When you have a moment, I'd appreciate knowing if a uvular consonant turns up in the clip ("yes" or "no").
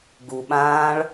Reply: no